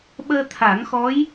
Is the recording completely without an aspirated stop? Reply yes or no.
no